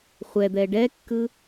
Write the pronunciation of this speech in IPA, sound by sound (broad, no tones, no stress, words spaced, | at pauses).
χʷɛd̪ɛ ɖɛkːɯ